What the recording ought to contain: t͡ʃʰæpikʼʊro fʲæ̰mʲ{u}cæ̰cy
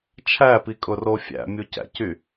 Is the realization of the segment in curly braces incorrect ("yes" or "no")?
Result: no